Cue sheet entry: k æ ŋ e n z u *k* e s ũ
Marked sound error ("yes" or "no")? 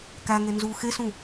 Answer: yes